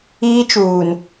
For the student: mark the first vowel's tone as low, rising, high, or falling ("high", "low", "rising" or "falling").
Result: high